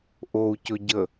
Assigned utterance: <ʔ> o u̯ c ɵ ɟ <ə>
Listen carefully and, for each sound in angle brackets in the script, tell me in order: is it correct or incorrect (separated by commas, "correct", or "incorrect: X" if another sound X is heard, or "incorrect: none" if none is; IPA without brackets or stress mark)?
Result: correct, correct